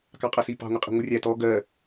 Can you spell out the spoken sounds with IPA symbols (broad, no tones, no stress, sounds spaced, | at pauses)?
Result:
k ɑ qʼ ʌ s i p ɑ̤ ŋʷ ɪ qʼ i̤ ŋʷ ɪ rʲ æ t ɔ ɡ ɜ